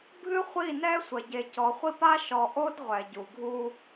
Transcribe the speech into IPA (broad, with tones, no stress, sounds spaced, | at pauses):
bʱ ɨ˦ χʷ i˦˨ n ɛ˦ sʷ ɐ˨ ɟ e˨ c ɔ˨ χʷ i˦ p a˦ ʃ ɔ˨ ʔ o˦ d ʁʷ ɛ˨ ɟ u˨ ɡʱ u˦